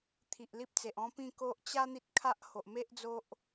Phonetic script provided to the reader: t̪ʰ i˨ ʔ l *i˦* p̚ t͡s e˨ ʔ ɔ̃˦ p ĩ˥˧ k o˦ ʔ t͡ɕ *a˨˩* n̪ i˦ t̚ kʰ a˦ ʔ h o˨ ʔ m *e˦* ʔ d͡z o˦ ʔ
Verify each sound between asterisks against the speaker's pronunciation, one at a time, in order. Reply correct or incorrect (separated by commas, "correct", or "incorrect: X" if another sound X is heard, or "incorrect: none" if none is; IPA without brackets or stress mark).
correct, incorrect: a˦, correct